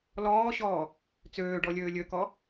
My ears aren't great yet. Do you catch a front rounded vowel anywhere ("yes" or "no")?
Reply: yes